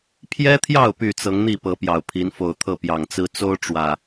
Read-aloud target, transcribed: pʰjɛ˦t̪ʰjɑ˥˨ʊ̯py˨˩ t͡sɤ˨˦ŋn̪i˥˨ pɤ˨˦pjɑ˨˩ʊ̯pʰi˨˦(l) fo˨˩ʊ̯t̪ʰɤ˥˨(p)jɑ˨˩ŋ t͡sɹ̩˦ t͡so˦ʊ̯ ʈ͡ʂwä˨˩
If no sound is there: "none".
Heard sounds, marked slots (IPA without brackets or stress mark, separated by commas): n, p